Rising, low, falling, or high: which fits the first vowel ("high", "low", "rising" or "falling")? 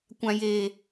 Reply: high